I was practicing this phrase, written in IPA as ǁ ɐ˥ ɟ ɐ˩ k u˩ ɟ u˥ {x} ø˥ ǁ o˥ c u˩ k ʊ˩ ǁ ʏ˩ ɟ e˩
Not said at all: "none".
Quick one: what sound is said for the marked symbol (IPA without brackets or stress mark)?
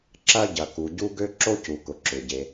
ɡ